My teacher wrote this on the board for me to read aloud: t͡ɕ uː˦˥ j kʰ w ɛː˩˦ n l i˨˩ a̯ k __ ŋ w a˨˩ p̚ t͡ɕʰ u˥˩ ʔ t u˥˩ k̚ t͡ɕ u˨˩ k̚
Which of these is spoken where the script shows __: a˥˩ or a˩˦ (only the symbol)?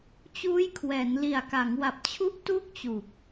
a˩˦